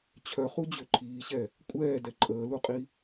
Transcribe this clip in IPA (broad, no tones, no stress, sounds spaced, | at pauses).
t͡ɕʰ œ χ u d͡ʑ ø ǃʰ iː ɕ ɛ | kʷʼ ɛː d ɛ ǃʼ əː l u qʼ i